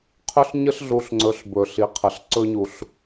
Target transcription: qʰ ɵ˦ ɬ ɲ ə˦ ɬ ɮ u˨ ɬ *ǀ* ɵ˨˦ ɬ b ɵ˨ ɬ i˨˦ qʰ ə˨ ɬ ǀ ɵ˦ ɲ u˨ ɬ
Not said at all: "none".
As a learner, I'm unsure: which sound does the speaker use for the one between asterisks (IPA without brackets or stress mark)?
ŋ͡ǀ